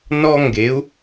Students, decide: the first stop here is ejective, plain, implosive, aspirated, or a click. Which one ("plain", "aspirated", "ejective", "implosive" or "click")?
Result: plain